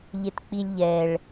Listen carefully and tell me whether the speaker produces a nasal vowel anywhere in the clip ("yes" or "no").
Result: no